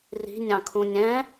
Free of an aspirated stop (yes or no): no